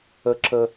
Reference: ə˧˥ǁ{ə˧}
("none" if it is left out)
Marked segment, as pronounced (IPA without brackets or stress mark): ə˧